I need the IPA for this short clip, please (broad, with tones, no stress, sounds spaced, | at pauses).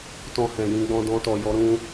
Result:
t ɔ̃˧ h ɛ̃˨ j ĩ˧ ɡ͡b ɔ̃˧ d ɔ̃˧ t ɔ˨ j ɔ˨˦ ɾ ũ˧